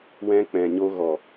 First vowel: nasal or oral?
nasal